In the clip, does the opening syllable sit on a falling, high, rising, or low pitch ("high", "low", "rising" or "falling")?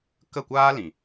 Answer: falling